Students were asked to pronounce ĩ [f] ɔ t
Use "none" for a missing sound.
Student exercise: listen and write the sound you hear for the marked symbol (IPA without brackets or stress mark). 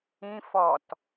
f